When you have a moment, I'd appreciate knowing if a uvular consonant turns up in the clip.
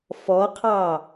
yes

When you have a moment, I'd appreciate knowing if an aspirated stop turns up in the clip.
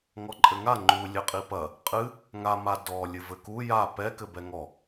no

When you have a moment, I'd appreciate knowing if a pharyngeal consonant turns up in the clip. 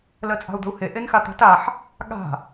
yes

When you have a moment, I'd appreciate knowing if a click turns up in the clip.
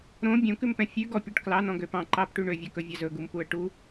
yes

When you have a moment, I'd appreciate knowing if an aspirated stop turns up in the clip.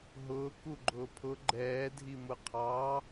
yes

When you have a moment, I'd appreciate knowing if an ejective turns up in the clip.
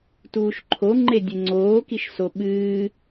no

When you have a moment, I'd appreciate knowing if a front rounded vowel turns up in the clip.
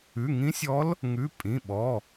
no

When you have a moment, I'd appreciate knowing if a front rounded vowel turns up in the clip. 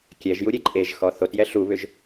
yes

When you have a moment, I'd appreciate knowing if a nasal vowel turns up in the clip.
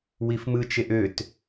no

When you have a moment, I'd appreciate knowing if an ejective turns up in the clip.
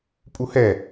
yes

